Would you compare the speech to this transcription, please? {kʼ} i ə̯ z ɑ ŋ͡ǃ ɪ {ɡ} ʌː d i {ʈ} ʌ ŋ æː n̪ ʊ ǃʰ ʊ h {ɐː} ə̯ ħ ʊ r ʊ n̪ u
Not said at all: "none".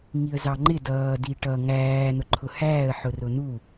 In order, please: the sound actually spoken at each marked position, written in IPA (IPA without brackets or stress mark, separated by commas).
ŋ, d, ʈ, æː